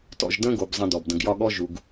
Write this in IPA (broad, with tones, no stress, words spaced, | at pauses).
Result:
tɔ̰˨ʒ də̃˦ɡo˩bzˤə̃˨ dɔ˩bdə̃˨ɡ jɒ˥ɠɔ˥ ʒu˩ɡ